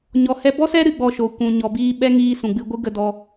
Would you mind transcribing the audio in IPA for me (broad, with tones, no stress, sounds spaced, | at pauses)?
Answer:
ɲ ɔ˧ h ɛ˦ b ɔ˦ s ɛ˦ ɾ ɨ˧ ɡ͡b ɔ˧ ʃ oː˨ kʷ ũ˨ ɲ ɔ˨ b iː˧ ɓ ɛ˦ ŋ iː˧ s ũ˨ ɡ͡b ɨ˧ ɡʷ ɨ˦ ɡ ə˧ d ɔ˧